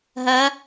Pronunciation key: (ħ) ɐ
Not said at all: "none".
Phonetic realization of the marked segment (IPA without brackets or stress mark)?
ɦ